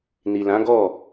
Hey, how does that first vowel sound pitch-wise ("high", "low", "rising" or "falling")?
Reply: low